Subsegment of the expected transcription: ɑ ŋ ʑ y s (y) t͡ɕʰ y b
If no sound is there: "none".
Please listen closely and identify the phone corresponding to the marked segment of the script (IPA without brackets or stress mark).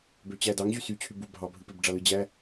y